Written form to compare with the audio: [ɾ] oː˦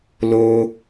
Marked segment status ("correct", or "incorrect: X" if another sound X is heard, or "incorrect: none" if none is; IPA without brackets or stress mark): incorrect: l